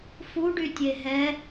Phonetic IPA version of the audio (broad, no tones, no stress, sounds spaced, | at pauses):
f u ɖ y tʲ e ɦ ɛ